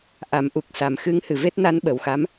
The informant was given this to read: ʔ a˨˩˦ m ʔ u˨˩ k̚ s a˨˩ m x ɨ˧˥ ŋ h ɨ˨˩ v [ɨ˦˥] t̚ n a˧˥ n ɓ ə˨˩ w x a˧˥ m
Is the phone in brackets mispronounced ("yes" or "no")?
yes